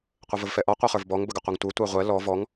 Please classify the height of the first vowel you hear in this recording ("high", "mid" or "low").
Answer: mid